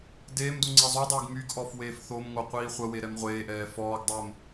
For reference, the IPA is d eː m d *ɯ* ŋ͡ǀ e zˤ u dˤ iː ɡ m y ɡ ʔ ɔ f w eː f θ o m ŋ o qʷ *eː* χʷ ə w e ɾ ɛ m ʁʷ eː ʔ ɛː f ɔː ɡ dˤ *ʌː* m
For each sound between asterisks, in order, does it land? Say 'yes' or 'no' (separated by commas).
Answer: no, no, no